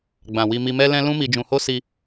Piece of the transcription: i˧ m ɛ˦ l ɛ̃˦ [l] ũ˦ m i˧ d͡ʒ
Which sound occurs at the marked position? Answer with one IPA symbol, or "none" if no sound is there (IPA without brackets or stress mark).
l